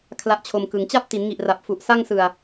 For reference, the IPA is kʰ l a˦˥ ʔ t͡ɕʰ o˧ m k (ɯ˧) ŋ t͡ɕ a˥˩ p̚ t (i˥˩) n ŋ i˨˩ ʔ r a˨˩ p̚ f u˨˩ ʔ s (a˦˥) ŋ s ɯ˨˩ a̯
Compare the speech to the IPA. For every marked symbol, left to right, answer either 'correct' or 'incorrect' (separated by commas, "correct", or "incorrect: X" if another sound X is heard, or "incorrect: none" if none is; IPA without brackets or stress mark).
incorrect: ɯ˩˦, incorrect: i˩˦, incorrect: a˥˩